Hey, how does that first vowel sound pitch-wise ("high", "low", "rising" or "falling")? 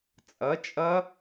rising